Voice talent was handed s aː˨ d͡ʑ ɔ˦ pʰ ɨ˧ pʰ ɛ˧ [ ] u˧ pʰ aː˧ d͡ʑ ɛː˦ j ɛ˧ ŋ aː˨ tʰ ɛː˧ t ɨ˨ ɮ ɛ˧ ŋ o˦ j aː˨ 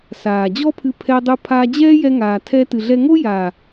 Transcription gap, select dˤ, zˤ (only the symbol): dˤ